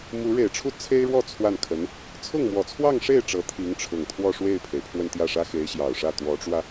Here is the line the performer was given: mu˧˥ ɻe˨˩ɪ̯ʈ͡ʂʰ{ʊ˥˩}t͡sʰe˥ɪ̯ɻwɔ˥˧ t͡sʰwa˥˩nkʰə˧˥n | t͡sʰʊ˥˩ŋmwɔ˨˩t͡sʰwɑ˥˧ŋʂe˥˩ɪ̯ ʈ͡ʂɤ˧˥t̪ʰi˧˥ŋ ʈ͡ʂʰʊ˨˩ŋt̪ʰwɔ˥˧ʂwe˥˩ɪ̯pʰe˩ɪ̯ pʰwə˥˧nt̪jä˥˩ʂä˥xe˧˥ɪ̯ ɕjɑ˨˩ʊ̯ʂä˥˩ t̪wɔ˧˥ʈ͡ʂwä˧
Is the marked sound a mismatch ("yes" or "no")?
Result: yes